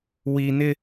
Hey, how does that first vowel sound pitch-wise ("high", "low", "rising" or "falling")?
low